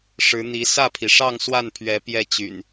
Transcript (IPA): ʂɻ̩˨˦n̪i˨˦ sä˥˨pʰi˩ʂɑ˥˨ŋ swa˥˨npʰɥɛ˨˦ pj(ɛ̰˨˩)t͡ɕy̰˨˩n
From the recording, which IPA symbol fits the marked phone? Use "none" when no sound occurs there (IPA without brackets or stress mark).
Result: ɛ˥˨